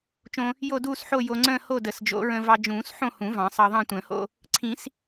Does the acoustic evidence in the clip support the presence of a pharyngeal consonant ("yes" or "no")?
yes